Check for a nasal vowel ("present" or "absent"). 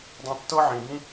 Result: present